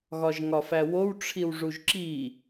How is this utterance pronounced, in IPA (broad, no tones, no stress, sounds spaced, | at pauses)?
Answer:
ɣ ɒ ʒ ŋ ɒ f æ w o w ʈ͡ʂʰ i w ʐ u ʒ ǁ i